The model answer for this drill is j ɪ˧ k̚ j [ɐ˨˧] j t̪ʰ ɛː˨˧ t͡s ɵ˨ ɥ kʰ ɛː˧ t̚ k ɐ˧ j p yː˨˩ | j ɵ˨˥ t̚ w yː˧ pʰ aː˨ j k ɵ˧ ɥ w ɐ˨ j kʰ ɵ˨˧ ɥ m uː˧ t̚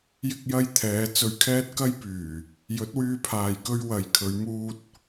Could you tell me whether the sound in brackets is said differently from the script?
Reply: yes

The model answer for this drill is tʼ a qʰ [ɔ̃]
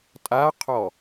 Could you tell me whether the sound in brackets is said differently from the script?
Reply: yes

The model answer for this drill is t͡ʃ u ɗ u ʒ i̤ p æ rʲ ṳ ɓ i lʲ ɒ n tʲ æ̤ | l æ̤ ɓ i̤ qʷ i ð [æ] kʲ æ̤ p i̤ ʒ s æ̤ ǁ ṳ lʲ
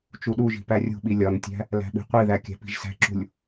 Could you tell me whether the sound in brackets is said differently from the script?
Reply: no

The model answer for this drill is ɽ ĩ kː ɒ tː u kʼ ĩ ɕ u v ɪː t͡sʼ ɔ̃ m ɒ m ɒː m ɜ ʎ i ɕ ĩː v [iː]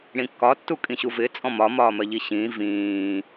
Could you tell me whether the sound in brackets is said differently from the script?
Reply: yes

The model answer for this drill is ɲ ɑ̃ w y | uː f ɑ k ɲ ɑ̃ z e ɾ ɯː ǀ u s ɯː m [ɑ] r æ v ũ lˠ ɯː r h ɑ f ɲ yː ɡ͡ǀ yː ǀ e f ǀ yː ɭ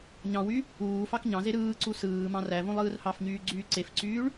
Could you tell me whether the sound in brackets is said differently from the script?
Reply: yes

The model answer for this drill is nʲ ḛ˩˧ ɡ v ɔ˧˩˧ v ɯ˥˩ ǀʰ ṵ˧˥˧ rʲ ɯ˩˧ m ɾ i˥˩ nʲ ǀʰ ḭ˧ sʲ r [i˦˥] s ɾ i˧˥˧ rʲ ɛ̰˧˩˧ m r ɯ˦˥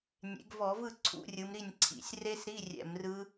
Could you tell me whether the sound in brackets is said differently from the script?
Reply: yes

